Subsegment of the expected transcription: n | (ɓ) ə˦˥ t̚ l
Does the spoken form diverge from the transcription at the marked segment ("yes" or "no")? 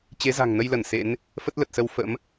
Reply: yes